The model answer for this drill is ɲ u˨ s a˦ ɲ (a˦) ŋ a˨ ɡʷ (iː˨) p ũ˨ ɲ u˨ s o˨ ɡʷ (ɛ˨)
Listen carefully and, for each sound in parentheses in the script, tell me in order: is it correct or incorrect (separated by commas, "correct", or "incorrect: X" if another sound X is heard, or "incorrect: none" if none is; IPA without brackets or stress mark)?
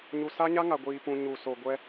correct, correct, incorrect: ɛ˦